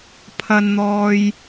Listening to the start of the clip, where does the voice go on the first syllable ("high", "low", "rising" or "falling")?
high